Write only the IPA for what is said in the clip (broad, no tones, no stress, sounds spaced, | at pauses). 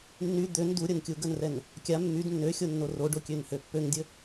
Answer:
nː y d̪ ø n d u ɾʲ ə n kʲ u ɡ ə n r ɛ n | kʲ a mː y d nː ø xʲ o nː o r o ɖ o kʲ ø n h ø pː ø ŋ dʲ ə